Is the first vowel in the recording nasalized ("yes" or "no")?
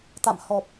no